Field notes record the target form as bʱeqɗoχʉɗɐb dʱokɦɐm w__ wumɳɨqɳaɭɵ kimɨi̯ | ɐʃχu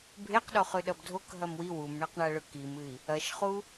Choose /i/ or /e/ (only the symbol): i